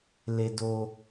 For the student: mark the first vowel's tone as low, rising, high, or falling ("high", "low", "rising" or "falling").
high